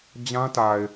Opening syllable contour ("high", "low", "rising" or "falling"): high